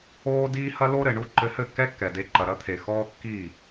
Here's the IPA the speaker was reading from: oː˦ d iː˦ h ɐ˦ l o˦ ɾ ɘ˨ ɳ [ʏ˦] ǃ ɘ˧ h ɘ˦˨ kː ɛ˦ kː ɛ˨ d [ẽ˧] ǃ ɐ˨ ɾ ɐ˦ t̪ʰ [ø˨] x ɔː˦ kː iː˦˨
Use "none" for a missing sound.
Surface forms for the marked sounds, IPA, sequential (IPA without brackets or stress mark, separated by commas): u˦, e˧, e˨